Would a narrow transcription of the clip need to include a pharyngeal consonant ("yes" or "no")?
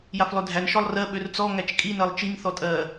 no